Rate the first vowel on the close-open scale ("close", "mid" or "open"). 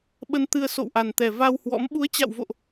mid